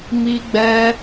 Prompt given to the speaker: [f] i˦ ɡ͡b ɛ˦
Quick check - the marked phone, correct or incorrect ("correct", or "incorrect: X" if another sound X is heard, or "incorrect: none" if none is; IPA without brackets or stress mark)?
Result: incorrect: m